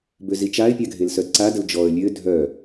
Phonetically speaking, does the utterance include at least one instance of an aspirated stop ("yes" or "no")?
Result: no